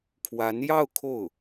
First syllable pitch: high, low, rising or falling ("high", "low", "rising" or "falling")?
rising